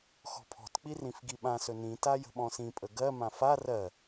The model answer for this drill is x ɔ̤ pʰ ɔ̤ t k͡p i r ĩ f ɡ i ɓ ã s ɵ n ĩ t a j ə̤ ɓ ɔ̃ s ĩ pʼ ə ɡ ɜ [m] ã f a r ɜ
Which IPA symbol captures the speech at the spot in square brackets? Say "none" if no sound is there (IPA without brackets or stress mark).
m